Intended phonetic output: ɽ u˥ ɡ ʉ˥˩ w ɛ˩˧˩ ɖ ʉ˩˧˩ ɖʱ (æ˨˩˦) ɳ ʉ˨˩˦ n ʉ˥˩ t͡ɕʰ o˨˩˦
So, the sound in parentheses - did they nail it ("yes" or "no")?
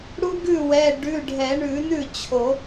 no